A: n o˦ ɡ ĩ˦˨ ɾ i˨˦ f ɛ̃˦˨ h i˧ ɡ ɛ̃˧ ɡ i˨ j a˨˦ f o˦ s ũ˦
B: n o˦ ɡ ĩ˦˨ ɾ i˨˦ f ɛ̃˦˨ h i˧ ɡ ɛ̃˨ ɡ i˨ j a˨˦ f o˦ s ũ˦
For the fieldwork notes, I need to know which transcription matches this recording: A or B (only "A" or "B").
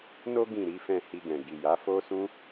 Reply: B